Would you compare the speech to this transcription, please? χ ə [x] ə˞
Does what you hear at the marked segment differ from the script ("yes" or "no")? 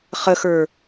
no